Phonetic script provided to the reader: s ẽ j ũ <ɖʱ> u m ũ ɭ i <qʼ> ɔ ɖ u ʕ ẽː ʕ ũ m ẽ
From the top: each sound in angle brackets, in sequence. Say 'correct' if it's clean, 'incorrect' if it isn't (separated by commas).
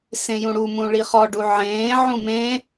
incorrect, incorrect